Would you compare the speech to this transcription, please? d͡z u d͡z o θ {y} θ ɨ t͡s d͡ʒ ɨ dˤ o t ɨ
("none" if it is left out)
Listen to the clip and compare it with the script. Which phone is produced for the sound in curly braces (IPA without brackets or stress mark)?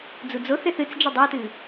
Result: e